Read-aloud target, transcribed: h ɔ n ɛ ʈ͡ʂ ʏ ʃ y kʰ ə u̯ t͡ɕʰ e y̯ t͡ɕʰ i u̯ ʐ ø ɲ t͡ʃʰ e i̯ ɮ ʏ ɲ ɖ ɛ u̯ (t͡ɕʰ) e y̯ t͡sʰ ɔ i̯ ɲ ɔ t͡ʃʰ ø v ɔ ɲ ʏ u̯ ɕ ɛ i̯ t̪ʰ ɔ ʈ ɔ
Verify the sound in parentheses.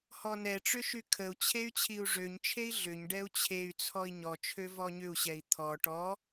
correct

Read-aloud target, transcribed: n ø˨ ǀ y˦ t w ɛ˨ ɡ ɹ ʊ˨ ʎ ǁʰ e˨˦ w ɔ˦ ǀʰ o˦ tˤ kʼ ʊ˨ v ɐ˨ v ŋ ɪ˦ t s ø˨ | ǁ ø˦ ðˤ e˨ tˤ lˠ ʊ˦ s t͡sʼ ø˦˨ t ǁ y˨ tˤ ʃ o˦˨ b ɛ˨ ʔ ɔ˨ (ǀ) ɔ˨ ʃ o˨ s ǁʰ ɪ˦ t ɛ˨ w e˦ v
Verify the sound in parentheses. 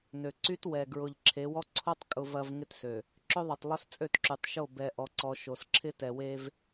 correct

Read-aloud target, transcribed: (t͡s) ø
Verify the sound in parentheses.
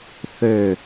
incorrect: θ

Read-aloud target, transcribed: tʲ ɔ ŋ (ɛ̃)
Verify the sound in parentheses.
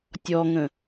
incorrect: ə̃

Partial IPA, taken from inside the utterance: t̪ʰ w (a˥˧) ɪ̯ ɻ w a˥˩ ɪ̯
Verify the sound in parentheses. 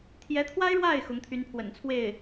incorrect: a˥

